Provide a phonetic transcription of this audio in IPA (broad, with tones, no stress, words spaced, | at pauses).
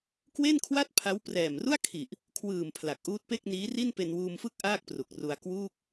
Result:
kwe˥˩nkʰwa˥˩t̚ pʰa˦˥wprɛː˨˩m ru˥˩a̯kʰi˨˩ʔ | kʰwɯː˨˩m pʰla˨˩k̚ʔuː˦˥t̚pe˥˩k̚niː˦˥ ri˥˩npe˧nwuː˧mfɯ˥˩k̚ ʔaː˥˩k̚pru˨˩k̚ru˧a̯ kwuː˥˩k̚